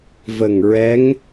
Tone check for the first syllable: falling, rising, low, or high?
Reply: low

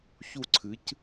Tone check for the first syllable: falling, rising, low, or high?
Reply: falling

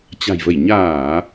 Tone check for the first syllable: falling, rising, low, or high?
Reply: low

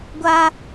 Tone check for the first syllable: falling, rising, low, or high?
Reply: high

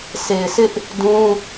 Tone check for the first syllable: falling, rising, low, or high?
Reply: low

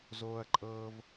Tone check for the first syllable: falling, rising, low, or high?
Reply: high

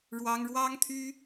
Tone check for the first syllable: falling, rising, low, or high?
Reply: high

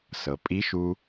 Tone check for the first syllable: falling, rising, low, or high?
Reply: low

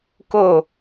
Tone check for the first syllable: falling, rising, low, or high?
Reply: falling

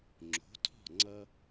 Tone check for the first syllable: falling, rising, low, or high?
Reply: rising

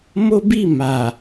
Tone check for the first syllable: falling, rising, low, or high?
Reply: high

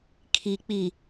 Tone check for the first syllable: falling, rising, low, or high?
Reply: low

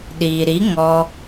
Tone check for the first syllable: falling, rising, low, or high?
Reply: low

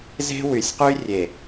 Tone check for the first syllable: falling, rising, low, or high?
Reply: high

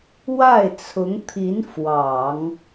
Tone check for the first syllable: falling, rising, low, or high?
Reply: falling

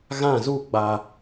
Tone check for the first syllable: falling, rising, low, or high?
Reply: falling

